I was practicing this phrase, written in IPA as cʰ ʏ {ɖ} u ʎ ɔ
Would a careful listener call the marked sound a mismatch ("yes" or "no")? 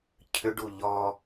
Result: no